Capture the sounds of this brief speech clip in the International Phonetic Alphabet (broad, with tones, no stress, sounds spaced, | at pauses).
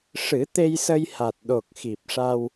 ʂ ɨ˨˩˦ t̪ e˧ j s ə˧ j h a˨˩ t̚ ɗ o˨˩ k̚ x i˨˩ p̚ ʂ a˧ w